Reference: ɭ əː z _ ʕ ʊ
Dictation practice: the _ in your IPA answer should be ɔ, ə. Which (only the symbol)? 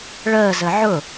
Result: ə